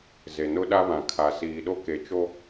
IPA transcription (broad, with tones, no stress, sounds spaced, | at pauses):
z e˨ n ʊ˦ ɗ a˦ β ã˨ kʰ a˨ s iː˨ ɗ o˦ k e˨ t͡ʃ o˦